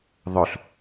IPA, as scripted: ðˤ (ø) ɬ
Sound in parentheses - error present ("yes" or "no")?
no